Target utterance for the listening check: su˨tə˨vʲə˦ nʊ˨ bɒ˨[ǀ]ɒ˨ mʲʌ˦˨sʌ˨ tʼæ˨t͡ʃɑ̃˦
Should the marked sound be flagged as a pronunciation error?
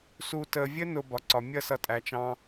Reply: no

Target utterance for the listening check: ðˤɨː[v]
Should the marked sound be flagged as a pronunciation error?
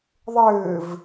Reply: no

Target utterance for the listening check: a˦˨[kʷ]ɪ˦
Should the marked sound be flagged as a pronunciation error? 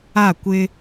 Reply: no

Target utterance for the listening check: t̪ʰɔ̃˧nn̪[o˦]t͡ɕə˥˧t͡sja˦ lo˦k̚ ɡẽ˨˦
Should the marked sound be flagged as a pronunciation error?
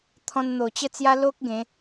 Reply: yes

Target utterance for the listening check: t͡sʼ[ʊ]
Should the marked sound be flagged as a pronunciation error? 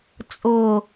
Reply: no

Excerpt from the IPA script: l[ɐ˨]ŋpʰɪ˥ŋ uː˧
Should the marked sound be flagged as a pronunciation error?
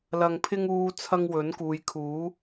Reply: yes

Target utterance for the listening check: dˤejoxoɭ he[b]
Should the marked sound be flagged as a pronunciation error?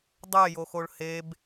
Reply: no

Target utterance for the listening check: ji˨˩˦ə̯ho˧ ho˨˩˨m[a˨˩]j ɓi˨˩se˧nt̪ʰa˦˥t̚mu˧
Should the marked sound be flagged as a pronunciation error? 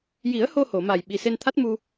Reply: no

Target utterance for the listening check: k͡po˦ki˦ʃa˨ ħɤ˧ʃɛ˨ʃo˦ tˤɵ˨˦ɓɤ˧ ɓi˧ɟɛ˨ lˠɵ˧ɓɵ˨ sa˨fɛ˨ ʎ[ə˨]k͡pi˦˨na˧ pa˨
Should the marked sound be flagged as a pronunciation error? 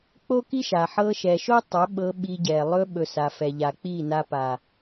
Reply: yes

